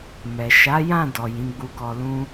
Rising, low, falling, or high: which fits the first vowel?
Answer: low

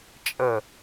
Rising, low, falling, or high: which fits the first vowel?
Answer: low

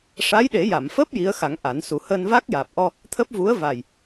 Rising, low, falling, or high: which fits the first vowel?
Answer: rising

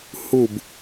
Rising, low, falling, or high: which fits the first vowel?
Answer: falling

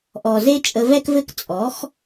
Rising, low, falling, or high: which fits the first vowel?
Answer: low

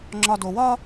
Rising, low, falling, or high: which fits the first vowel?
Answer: low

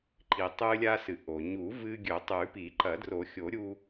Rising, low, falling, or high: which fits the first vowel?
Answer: low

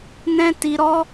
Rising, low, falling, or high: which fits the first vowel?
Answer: high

